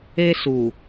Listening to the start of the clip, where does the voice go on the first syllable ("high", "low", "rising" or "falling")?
high